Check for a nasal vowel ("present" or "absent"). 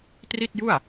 absent